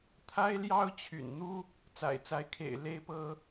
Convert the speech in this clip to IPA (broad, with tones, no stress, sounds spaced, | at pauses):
t̪ʰ a˥ ɪ̯ l j ɑ˥ ʊ̯ t͡ɕʰ y̰˨˩ n n̪ u˥ | t͡s a̰˨˩ ɪ̯ t͡s a˧˥ ɪ̯ kʰ ḛ˨˩ ɪ̯ l e˥ ɪ̯ p ɤ˥